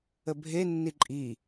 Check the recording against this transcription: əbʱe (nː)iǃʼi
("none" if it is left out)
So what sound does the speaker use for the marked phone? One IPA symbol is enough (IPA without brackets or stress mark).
nː